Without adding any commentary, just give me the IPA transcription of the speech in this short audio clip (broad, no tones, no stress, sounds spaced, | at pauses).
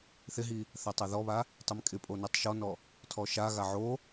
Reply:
θ ɪ ɦ i | θ a tˤ a ð ɔ β a | tˤ ɛ m kʼ ɪ pʼ o n ɛ tˤ ʃ ɔ n ɔ | tʰ ɔ ʃ a ɣ a ʕ o